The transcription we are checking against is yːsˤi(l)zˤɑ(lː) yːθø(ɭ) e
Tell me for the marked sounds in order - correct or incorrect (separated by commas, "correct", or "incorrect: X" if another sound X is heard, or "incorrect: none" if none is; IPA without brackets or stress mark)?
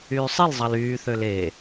correct, incorrect: l, incorrect: l